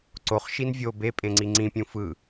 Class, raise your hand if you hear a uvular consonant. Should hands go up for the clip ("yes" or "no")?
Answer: yes